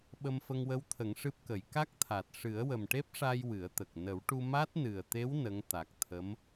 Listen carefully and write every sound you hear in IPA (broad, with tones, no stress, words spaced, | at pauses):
ɓə˧mfə˧ŋwə˧˥wt̪ʰə˨˩˦ŋ ʂɨ˦˥p̚kə˨˩˦j ka˦˥k̚t̪ʰa˨˩t̚ ʂɨ˨˩˦ə̯wə˨˩mʈe˦˥p̚ʂa˧j wɨ˨˩˦ə̯t̪ə˨˩k̚ nə˨˩˦wʈu˧ ma˦˥t̚nɨ˨˩ə̯t̪e˧˥w nə˧˥ŋ t̪a˨˩k̚t̪ʰə˧˥m